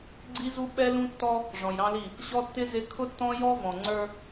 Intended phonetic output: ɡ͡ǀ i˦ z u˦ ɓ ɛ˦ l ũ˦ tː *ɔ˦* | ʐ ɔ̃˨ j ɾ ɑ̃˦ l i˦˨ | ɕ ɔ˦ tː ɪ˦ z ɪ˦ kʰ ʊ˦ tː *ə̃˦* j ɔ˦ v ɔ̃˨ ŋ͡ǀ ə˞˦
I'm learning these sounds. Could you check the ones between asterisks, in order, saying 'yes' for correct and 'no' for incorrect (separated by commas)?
yes, no